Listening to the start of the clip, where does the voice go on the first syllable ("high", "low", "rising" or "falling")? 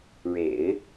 low